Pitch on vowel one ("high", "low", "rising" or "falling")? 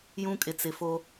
high